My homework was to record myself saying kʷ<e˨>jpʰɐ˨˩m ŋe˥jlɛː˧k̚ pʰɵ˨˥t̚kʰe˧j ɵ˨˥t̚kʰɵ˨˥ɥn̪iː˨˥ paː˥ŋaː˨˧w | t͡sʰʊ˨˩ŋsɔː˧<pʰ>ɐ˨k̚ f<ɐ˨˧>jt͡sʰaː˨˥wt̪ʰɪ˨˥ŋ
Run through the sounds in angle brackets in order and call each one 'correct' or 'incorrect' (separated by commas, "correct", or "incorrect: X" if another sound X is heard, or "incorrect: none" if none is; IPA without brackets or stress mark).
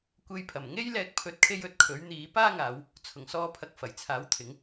incorrect: e˧, correct, incorrect: ɐ˨˩